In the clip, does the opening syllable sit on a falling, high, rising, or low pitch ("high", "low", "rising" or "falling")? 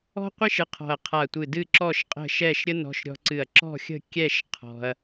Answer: high